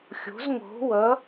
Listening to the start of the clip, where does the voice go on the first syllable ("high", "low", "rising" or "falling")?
rising